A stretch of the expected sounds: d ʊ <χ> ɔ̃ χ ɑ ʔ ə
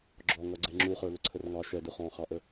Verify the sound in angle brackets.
correct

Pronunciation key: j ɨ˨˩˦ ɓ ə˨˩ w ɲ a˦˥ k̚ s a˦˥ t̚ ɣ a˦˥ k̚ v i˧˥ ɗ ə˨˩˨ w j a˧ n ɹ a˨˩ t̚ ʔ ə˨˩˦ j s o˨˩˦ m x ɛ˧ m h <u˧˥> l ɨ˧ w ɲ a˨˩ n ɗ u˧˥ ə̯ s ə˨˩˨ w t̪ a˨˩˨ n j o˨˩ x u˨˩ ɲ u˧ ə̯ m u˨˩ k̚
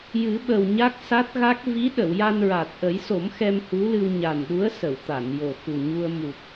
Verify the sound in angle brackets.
correct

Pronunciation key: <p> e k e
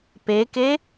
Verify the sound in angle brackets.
correct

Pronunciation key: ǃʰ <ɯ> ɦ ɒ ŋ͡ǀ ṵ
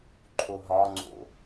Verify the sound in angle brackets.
incorrect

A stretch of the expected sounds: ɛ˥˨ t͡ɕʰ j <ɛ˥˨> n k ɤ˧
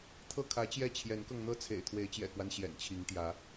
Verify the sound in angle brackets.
incorrect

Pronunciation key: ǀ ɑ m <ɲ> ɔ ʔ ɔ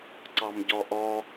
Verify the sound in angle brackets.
incorrect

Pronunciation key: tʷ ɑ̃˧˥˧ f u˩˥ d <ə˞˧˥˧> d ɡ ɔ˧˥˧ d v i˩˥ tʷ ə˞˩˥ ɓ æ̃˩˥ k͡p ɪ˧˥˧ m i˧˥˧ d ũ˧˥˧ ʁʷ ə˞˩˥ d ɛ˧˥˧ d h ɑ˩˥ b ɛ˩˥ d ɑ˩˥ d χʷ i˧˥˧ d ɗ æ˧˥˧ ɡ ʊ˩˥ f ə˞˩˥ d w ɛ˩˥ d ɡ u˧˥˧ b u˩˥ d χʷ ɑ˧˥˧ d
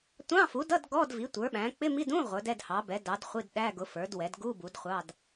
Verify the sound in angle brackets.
incorrect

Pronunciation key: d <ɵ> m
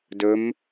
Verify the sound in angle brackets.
correct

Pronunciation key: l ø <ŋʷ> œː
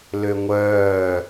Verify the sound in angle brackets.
correct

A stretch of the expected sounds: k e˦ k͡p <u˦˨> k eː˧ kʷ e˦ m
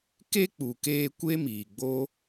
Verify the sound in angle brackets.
incorrect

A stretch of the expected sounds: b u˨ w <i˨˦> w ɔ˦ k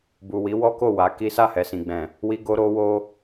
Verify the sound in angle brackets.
correct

